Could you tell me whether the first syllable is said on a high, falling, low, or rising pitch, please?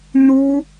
high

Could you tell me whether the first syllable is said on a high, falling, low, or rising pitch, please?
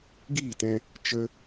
falling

